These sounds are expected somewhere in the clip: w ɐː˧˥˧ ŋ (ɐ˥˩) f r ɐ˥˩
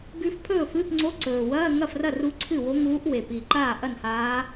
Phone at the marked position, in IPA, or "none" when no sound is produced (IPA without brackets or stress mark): ɐ˥˩